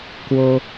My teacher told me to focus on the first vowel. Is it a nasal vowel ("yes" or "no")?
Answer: no